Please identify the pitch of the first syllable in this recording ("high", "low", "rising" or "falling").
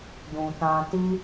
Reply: low